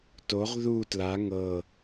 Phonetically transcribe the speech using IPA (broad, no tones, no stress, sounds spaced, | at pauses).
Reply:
t o ʁ ð u t l a ŋ ɤ